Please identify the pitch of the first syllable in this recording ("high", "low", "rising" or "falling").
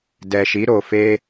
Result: low